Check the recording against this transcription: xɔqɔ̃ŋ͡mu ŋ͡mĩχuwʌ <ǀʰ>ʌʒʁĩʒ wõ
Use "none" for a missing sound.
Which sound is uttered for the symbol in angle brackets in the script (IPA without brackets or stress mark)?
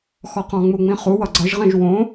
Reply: ɡ͡ǀ